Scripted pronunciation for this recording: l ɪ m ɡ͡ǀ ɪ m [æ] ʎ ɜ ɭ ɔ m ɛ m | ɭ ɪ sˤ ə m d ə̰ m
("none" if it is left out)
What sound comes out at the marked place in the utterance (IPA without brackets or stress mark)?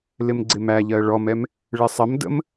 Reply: æ